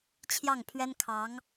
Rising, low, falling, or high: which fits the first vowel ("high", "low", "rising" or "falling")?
falling